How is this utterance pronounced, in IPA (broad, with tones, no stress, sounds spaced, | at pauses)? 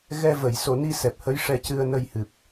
ɣ ɛ˧ v ə˨˩˨ j s o˨˩˨ n i˧ s ɛ˨˩ p̚ h ə˧˥ j ʂ ɛ˧ c ɨ˧ ə̯ n ə˧ j h ɨ˨˩ p̚